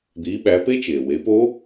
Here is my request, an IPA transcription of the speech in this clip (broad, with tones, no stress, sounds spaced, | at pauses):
d̪ iː˨˦ ɓ æ˨˦ p e˦˥ t͡ʃ eː˩ w e˨˦ p o˦˥